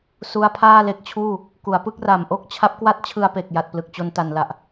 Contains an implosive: no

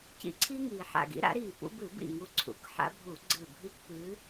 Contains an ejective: no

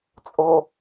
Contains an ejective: yes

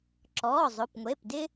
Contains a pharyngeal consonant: no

